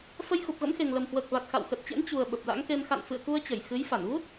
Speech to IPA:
fə˧jxu˨˩p̚ɣə̰˧˥mxe˨˩ŋ lə˨˩mhwəː˨˩k̚va˨˩t̚ xa̰˧˨wxə˨˩t̚t͡ɕḛ˧˥n t͡ɕu˨˩ə̯ ɓə˨˩p̚la̰˧˥ŋke˧m xa̰˧˨nfɨ̰˧˨ə̯ku˧ə̯t͡ɕə˧˩j xɨ˨˦j fa˧˩nvu˦˥t̚

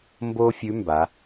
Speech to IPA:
mbo˥fʲʉ˧˥mba˩˧

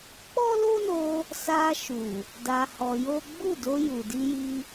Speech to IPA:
k͡pɔ˦lo˦no˧ | sa˧ʃu˨ | da˧hɔ˧jo˦ ɡ͡bu˦˨do˧ ju˨di˧ji˧

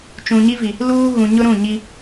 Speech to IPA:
t͡ʃũ˨ɲi˦vi˨ | luː˦ ɣũ˨ɲʊ˦ɾũ˦˨ ɲi˦

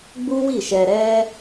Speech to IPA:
ɡ͡bu˦wi˦˨ʃɛ˧ɾɛ˦

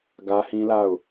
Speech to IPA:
ɡä˦hĩ˦la˦˨ʊ̯

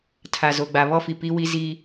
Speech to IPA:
tʰa˨zo˨ɡ͡ba˨ βɔ˦fi˨ pi˦wi˦ zi˦

